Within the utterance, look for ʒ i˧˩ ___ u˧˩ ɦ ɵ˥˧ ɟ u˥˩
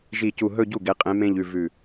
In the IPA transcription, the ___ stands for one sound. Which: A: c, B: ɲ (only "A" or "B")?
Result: A